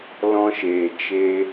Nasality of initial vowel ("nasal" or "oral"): nasal